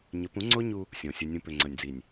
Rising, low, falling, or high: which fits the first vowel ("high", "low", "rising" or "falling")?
rising